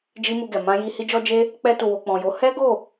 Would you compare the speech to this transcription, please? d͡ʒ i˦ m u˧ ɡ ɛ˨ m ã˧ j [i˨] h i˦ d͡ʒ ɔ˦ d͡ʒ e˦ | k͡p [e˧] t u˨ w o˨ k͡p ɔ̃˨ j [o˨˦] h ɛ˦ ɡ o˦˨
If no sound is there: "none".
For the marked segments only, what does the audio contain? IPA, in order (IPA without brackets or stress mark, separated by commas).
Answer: i˧, ɛ˧, o˨˦